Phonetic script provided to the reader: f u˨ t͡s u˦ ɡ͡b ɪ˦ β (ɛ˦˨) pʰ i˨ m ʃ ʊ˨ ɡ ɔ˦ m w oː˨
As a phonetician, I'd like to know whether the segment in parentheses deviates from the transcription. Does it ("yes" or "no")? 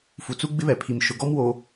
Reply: yes